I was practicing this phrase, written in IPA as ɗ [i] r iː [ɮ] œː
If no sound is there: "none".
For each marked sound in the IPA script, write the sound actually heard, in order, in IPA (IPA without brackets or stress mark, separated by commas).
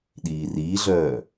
iː, ɮ